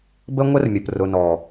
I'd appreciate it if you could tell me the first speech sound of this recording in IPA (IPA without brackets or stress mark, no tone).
b